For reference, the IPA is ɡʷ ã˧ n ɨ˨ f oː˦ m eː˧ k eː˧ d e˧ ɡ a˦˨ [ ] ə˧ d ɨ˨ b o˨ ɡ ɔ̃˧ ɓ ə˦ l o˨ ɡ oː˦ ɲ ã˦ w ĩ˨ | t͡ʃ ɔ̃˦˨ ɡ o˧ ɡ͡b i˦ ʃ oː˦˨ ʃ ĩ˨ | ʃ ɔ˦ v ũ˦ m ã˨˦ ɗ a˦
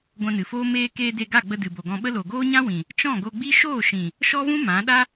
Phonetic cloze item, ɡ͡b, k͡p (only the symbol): ɡ͡b